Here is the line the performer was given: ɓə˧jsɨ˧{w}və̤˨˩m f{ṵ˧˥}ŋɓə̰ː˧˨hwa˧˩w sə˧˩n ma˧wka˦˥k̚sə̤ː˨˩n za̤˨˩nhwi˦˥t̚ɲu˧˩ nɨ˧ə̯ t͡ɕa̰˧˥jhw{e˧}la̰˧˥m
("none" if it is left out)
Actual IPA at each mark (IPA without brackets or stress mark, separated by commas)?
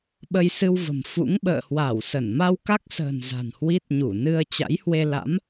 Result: w, ṵ˧˥, e˧